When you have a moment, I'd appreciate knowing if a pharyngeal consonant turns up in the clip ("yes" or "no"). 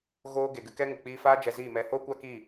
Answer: no